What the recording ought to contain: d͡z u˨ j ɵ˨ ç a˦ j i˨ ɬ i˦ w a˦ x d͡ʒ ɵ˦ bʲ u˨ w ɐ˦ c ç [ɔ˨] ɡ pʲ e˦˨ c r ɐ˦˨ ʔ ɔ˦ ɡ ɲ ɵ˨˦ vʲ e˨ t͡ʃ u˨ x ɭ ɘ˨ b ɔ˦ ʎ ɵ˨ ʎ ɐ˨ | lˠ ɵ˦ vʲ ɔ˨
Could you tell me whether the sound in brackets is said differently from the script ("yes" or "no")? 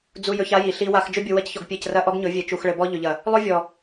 no